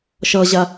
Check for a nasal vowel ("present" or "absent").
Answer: absent